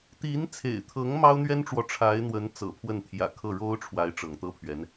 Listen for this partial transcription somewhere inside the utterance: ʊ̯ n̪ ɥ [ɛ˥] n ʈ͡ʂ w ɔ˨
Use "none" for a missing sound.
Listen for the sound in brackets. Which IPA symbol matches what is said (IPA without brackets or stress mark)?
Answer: ɛ˥